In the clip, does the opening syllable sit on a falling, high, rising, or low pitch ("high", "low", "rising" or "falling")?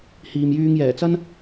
low